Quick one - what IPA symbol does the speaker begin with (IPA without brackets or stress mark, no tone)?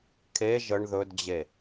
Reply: kʰ